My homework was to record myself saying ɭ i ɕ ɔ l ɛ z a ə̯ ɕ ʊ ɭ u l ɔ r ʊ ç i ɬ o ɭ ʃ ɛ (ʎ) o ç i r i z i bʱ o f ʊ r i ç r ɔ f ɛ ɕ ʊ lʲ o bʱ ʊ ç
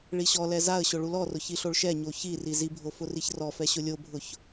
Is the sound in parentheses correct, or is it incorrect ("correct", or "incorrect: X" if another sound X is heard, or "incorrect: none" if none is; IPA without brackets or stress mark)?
incorrect: ɲ